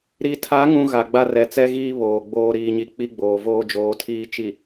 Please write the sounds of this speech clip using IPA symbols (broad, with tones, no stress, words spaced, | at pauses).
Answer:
ɾi˨tʰa˨˦ŋũ˨ ɣa˨ɡ͡ba˦rɛ˨ t͡sɛ˦ɣiː˦ βoː˨ɡ͡boː˦ ɾiː˨ɲi˨ k͡pi˦ɡ͡boː˨ voː˦d͡ʒoː˨˦tʰiː˦ t͡ʃi˨